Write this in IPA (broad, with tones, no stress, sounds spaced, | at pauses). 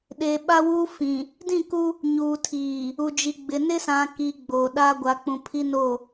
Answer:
ɗ e˨ ɓ a˦ w uː˦ f ĩ˨ | d ĩ˦˨ k u˦ | ɲ uː˨ tʰ iː˨ | u˨ d͡ʒ i˨ ɡ͡b ɪ˨ n ɪ˦ s ã˨ k i˨ ɡ͡b oː˨ ɗ a˦ ɡʷ a˨ k͡p ũ˨ pʰ i˦ n o˦˨